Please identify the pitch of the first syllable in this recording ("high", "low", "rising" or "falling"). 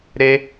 high